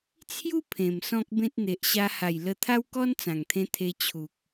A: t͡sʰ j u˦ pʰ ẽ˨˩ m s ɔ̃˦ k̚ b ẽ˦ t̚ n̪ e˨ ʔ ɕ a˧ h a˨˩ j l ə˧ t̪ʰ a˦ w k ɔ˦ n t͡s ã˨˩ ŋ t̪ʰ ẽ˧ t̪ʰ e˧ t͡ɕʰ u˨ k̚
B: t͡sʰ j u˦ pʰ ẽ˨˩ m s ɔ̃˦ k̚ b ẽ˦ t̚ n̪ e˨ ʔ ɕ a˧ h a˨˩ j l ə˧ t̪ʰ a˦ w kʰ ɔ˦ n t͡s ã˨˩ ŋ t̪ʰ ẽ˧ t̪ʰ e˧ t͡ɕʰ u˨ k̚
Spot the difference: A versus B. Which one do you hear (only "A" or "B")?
A